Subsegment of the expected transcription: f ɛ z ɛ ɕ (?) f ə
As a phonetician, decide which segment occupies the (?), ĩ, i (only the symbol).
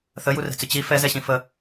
ĩ